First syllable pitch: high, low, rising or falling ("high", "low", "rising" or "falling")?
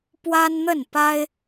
high